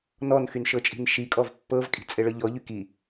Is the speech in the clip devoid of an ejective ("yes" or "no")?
no